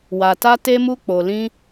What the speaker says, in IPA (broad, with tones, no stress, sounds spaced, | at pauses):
w a˧ t a˦ t e˦ m u˦ k͡p o˧ l ĩ˦